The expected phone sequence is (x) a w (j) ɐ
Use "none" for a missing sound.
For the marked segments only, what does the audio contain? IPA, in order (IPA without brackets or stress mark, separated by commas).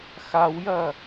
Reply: x, j